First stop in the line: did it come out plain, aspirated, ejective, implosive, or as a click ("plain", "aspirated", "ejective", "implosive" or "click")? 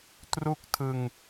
plain